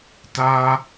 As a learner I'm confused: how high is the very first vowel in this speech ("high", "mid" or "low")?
low